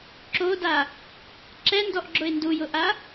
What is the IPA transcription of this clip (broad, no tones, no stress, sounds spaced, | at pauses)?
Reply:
ǁ o d a | ǁ ɛ n d ɔ ʔ ɡ͡ǁ ʊ ɪ̯ n d u j ʊ ʔ a